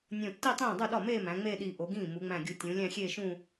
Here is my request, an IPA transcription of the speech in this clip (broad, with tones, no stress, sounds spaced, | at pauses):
nʲ õ˧˩ tː i˥˧ tˤ ĩː˥˩ dˤ u˥˩ ɗ ɒ˥˩ m eː˥˧ m æ̃˩˧ ŋ͡m eː˥˧ ɗ iː˧˩ ʔ o˩˧ ɡ ĩː˥˩ m u˩˧ ŋ͡m æ̃˧˩ ɡʲ u˧˩ tʲ ũ˩˧ lʲ æ̃˥˧ xʲ eː˥˧ ʃ ũ˥˧